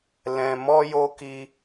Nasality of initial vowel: nasal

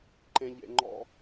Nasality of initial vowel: nasal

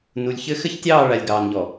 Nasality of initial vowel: oral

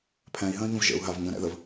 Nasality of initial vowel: nasal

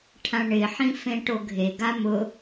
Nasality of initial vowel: nasal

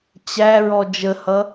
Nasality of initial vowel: oral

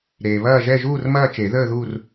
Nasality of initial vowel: oral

